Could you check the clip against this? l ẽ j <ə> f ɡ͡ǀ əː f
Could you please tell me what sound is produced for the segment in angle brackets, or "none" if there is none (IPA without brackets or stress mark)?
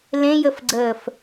ə